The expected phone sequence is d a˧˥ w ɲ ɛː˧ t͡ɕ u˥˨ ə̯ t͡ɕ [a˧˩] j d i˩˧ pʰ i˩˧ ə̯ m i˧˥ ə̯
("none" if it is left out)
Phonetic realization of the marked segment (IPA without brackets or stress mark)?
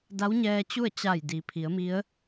a˧˩